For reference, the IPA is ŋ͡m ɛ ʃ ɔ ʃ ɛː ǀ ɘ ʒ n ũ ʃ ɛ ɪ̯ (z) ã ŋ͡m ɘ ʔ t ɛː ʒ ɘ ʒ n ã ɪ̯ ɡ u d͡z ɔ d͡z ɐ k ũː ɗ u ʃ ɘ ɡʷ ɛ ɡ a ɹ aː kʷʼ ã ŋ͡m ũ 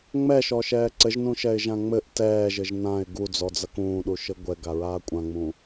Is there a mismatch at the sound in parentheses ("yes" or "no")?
yes